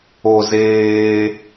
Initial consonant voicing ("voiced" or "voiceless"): voiced